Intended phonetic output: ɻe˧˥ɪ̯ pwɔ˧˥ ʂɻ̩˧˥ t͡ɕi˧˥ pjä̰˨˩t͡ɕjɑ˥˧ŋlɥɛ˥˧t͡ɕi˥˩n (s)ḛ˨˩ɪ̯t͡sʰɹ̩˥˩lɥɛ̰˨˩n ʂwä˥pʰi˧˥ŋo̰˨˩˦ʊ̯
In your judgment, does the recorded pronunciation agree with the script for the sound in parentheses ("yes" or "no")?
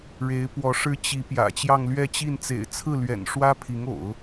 no